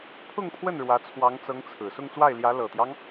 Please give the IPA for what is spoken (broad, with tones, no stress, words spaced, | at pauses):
pʰʊ˥˧ŋpʰwə˥˩n ɻwä˧˥t͡sʰwɑ˧˥ŋt͡sɤ˧˥ŋ t͡sʰɹ̩˨˩ sʊ˥˧ŋt͡swa˥˩ɪ̯ljä˧˥ lɤ˨˩t̪jɑ˦ŋ